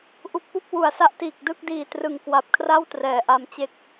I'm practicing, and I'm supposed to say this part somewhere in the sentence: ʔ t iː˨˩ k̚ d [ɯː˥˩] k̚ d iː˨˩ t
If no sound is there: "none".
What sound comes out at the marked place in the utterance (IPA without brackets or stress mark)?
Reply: ɯ˥˩